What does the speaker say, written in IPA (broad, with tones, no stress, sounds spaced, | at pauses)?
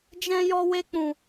d͡ʒ ɛ̃˧ j ɔ˧ w e˧ k͡p ũ˨